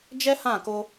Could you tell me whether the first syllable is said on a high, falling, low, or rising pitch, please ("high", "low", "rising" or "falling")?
high